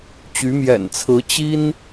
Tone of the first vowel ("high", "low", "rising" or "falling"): rising